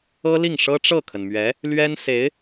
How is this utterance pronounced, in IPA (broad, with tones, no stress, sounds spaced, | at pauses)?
ɤ˥ l i˥˩ ŋ ʂ ɤ˥ ʈ͡ʂ ɤ˥˩ kʰ ə˩ n m ɥ ɛ˧˥ | l ɥ ɛ˥ n s e˧˥ ɪ̯